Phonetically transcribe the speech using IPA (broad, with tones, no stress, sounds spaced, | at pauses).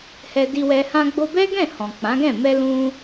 h ɛ˧ d i˧ w ɛ˧ h ã˧ ɡ͡b o˧ b ɛ˦ ɡ ɛ̃˦˨ h ɔ̃˨ k͡p ã˨˦ ɡ ɛ̃˦˨ m ɛ˧ l ũ˧